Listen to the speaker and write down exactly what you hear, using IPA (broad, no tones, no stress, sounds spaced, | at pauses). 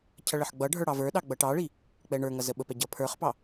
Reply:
cʰ ʌ ɭ ə ħ ɡ͡b ʌ ɖʱ ə˞ ɽ ɑ v ə˞ ɗ ɑ ɡ͡b ʌ ʈ ɑ ɭ i | k͡p ɛ ɳ ə˞ ŋ ʌ z ə ɓ ə p ɛ ɟ ʌ pʰ ə˞ χ p ɑ